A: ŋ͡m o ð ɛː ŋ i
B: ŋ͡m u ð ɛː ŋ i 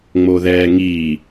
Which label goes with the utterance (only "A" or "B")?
A